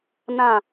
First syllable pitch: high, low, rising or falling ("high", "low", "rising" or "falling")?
falling